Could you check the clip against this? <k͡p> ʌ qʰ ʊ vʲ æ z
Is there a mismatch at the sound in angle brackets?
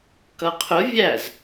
yes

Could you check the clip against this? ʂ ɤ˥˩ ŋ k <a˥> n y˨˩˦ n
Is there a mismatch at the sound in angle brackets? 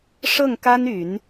no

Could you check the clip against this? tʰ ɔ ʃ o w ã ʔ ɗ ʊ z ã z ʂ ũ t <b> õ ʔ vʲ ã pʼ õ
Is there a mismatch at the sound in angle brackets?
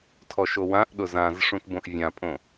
no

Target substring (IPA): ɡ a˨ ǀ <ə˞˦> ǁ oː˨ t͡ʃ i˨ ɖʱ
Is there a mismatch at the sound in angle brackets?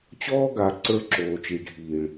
no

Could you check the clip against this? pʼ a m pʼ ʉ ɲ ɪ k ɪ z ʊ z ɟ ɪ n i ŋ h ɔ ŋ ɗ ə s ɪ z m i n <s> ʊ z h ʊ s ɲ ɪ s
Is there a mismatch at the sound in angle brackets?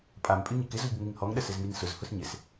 no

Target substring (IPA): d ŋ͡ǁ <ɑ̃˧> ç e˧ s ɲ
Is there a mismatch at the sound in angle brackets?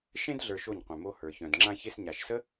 yes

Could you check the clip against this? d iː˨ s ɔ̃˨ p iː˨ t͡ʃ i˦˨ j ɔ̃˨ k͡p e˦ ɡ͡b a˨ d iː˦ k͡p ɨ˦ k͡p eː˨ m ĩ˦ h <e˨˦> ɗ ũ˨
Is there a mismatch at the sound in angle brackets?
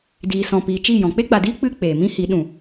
yes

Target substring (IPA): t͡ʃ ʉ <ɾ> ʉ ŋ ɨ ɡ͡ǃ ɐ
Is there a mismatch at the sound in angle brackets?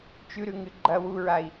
no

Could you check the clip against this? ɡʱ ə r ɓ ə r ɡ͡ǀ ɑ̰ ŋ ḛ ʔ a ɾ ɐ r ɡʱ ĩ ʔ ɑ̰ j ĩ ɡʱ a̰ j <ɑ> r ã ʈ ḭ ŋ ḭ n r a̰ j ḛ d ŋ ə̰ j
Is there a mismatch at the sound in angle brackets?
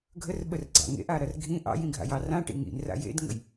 no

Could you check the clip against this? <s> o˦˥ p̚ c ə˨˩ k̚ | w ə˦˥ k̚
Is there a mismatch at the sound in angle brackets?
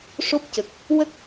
yes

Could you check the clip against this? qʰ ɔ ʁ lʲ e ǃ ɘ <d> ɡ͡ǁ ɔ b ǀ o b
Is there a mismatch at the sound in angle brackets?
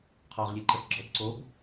yes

